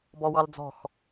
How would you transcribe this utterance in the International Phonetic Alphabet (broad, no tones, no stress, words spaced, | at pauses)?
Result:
bɔwɑld͡zɔ̤x